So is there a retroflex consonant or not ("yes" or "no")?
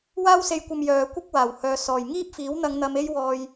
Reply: no